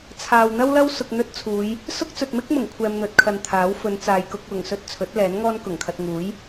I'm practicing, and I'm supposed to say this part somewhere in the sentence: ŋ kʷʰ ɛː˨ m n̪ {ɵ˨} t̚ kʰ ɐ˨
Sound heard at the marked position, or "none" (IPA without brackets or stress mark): ɵ˨